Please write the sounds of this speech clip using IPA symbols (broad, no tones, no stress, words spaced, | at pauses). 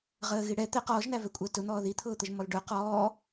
ʁəːɣiɽɛ t̪ɛ qɔːʒn̪ævɛkʷʼəː tʊn̪ɔː ðit̪ʰʊːt̪əʒmɔl ɖʊ qɔː